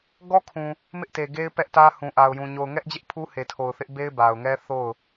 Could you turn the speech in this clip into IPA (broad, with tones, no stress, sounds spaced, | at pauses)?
ɡ ɔ˦ kʰ ũ˨ | m ɪ˦ ʔ t e˨ ɡ e˦ ɪ̯ p ɛ˦ ʔ t ä˦ h ũ˨ ʔ a˨ ʊ̯ j ũ˨ ɲ o˨ ʊ̯ ŋ ɛ˦ ʔ d͡ʑ ɪ˦ ʔ pʰ u˦ h e˨ tʰ o˨ ʊ̯ θ ɪ˦ ʔ b e˦ ɪ̯ b a˨ ʊ̯ ŋ ɛ˦ θ o˦˨ ʊ̯